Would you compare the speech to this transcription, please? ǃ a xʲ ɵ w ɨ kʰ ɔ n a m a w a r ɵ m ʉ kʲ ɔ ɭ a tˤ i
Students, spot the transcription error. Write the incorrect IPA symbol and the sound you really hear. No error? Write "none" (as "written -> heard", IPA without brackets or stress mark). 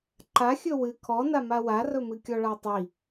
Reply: ʉ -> ɨ